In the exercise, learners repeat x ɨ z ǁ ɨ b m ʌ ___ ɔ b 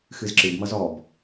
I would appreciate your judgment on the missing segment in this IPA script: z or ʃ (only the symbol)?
z